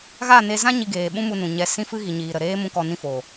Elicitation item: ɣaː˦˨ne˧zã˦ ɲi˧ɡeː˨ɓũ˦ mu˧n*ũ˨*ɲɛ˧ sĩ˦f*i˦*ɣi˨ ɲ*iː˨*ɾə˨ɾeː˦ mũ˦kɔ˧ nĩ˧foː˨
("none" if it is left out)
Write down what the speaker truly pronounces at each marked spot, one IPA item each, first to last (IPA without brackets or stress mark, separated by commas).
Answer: ũ˨, ɨ˦, iː˨